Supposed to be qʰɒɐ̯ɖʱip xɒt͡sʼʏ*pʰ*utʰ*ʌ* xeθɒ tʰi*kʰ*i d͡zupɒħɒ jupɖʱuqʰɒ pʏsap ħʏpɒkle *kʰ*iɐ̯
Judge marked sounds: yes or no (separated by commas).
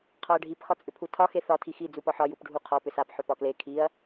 yes, no, no, yes